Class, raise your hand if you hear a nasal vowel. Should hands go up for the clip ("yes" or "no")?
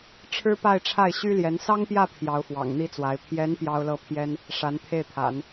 no